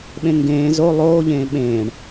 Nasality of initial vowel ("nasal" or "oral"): nasal